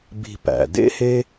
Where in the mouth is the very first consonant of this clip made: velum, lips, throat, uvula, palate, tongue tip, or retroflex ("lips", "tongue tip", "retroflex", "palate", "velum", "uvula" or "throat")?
lips